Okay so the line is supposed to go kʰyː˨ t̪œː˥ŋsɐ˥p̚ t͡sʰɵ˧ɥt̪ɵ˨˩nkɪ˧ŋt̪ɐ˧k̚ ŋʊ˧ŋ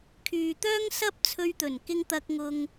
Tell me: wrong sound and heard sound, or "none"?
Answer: none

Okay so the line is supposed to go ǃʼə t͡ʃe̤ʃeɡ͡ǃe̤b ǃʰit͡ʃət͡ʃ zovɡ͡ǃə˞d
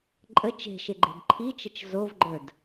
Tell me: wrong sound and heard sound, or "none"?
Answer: none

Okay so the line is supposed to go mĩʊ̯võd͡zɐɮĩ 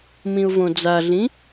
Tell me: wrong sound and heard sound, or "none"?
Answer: ɐ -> a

